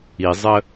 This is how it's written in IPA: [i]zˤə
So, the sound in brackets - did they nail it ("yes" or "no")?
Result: yes